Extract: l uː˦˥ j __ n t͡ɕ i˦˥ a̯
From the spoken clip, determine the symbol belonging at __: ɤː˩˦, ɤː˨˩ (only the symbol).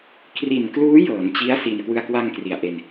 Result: ɤː˩˦